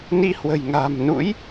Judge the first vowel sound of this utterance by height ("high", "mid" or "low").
high